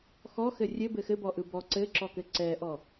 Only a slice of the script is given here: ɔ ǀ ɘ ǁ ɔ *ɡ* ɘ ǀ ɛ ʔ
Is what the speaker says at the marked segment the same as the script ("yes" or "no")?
no